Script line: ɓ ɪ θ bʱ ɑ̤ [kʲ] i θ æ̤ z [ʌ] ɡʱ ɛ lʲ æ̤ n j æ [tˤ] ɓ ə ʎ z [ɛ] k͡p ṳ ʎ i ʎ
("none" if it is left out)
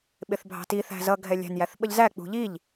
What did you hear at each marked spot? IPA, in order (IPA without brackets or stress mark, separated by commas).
t, ʌ, θ, æ